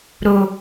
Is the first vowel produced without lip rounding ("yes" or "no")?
no